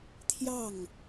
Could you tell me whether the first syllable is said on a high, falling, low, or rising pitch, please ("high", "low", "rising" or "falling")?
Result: falling